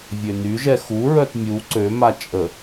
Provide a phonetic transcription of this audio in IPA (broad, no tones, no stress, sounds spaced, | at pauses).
vʲ ø n y ʒ ɛ x u ɹ œ t mʲ u ǀ ø m a t͡ʃʼ ə